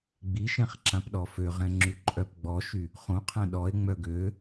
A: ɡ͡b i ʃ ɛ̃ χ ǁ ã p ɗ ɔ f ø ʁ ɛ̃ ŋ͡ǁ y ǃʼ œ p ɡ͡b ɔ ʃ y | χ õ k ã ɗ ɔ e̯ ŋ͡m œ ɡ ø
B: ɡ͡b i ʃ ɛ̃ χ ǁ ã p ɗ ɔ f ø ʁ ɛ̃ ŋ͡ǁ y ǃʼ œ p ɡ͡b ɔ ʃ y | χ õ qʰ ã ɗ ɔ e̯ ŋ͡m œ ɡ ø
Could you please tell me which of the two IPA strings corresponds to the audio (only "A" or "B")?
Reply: B